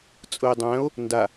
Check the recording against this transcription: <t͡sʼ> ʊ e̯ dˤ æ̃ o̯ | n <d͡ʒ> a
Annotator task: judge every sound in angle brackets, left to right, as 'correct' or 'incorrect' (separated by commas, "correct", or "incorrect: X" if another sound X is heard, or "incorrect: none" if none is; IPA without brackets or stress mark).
correct, incorrect: d